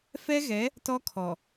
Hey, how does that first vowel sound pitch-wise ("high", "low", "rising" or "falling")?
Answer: high